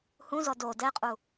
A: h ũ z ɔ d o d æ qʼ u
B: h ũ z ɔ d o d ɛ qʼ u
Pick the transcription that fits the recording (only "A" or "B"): B